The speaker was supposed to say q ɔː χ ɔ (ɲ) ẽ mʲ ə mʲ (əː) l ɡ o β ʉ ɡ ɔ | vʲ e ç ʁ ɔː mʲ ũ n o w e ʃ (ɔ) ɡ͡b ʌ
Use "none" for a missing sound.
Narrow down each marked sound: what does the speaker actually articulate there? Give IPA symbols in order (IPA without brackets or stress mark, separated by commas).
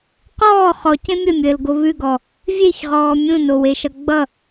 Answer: c, əː, ʌ